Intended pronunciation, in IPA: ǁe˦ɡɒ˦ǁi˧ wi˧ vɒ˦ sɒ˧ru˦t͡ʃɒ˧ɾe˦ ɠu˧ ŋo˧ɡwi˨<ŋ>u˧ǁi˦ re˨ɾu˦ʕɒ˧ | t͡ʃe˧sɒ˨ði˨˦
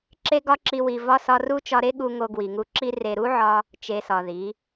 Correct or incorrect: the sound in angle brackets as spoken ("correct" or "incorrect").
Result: correct